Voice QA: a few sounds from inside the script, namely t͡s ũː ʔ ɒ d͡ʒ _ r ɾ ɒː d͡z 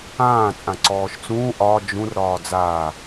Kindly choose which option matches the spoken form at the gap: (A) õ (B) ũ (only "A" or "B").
B